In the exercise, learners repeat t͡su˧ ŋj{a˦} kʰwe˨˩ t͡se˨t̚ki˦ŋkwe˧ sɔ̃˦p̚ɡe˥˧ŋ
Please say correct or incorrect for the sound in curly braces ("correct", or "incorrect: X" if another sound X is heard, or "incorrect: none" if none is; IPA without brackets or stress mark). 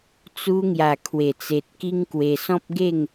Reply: incorrect: a˨˩